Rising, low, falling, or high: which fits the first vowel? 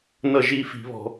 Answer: falling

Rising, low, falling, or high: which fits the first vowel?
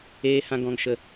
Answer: high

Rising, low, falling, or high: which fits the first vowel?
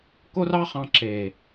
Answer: high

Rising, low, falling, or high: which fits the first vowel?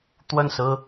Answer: falling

